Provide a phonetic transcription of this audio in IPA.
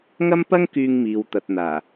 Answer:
ŋ ɐ˥ m p ɐ˥ ŋ k yː˧ ŋ m iː˨ w t̪ ɐ˨ t̚ n̪ aː˨˩

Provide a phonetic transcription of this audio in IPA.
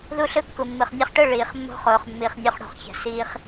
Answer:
ð u˦ ɬ ɯ˦ kː u˨ mː ɯ˨ χ nʲ ɘ˧ χ ʈ ɯ˦˨ ɭ iː˨ χ mː o̤˦ χ oː˨ χ mː i˨ χ nʲ o˧ χ ɽ o̤˨ χ ç ɛ̤˨ s iː˧ χ

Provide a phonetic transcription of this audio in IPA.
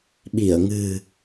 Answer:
ɓ i˧˩ ə̯ ŋ ɨ̤˨˩

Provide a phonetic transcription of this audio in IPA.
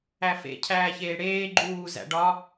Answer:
æ f ḛ cʰ æː ç eː ɽ eː ɡ͡ǃ uː z æ̰ ɖ ɒ

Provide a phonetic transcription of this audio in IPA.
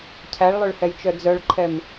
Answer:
cʰ æ ɭ lˠ ø ɭ h ɛ j t͡ʃ œ d͡z œ ɭ ǃʰ ɛ m

